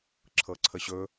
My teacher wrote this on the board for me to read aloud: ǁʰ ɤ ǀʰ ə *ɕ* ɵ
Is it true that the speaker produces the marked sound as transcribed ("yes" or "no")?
yes